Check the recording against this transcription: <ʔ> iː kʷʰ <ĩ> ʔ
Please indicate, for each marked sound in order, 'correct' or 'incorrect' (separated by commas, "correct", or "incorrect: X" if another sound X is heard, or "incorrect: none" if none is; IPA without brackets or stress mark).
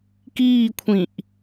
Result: incorrect: k, correct